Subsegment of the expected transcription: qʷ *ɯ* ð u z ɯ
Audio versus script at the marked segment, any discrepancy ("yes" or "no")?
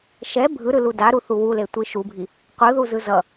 no